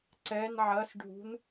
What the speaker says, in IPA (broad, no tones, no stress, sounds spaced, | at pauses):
ǀ ɛ n ʕ ɐ s ɖʱ ṳ n